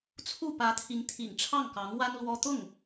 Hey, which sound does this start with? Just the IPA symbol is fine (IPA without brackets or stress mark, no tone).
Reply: t͡sʰ